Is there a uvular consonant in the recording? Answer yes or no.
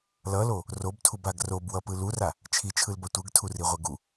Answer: yes